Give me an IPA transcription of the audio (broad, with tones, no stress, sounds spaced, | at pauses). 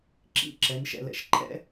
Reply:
ǁ ḭ˥˧ ǁ ɛ˩˧ n ʃ ɛ̰˧˩ l ɛ̰˧˩ ʃ ǃʰ ɛ̰˥